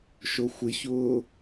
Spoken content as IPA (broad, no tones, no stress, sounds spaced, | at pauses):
ʃ o xʷ ɪ ç ʊː